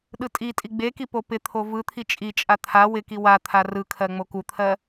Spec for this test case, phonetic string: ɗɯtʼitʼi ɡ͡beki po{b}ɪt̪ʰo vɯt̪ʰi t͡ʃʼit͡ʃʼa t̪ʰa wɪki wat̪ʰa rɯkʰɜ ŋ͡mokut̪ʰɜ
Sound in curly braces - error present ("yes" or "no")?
yes